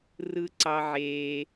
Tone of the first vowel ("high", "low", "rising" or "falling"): high